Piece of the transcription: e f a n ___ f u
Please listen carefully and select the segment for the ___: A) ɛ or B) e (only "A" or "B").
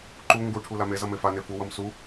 B